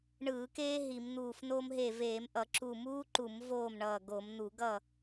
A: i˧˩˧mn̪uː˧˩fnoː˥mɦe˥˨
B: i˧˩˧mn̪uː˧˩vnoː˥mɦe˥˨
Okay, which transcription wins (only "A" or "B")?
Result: A